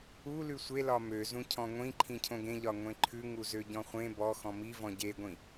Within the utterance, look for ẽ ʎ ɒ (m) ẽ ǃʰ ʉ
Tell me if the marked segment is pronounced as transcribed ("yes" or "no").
no